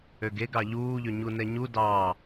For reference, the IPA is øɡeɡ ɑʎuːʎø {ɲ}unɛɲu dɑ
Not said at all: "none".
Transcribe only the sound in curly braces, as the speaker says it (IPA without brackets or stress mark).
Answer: ɲ